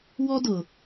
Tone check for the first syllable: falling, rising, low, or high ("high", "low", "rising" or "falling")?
high